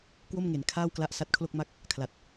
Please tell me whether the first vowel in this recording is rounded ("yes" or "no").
yes